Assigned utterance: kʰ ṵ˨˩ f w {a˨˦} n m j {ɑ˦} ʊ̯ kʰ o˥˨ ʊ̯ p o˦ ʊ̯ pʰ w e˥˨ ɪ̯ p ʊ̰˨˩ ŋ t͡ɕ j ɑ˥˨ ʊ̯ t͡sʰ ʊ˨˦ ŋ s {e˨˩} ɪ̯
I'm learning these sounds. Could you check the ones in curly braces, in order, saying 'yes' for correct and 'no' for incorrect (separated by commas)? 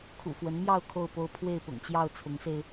no, no, no